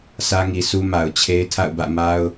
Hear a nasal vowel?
no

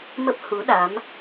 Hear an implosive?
yes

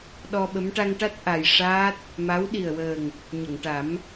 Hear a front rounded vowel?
no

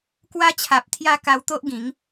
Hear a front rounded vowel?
no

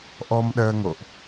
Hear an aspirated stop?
no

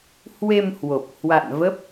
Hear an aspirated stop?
no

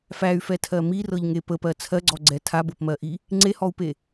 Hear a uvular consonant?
no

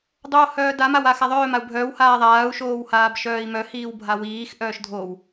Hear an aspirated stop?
no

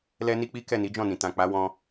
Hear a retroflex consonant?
no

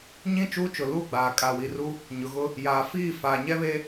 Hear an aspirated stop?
no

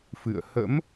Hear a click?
no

